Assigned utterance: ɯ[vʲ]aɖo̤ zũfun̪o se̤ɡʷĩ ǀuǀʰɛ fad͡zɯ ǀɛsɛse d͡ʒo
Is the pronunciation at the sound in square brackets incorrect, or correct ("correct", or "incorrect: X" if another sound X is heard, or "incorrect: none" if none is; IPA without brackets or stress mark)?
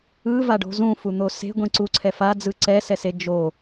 incorrect: v